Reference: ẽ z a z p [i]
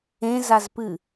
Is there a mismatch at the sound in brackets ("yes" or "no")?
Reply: yes